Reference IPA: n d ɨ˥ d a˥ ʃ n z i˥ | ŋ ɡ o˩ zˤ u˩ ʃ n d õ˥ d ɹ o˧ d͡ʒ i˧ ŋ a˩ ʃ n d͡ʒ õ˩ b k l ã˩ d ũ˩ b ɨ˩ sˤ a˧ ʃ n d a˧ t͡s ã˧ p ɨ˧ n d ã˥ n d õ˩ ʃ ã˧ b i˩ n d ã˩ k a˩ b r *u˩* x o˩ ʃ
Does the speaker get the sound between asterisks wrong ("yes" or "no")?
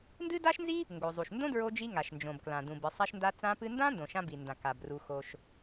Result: no